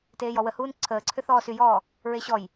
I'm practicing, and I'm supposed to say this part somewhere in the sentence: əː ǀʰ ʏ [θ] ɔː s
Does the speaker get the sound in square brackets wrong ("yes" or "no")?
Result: no